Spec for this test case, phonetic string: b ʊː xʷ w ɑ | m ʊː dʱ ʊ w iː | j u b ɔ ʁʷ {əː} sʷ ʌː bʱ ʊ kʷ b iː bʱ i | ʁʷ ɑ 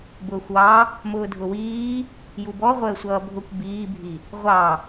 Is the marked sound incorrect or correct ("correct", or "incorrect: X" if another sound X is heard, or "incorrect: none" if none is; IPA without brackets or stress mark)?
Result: correct